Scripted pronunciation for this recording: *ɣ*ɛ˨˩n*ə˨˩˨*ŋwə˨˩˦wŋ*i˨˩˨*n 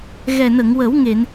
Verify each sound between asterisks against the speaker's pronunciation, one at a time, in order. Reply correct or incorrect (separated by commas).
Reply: correct, correct, incorrect